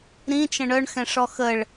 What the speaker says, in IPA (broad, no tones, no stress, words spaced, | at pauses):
ɾĩt͡ʃə̃ ɳœɳxɛ̃ʂɔ xəɭ